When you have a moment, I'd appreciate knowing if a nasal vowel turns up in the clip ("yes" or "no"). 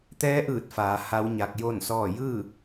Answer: no